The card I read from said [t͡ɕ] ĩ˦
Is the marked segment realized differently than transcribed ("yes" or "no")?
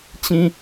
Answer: no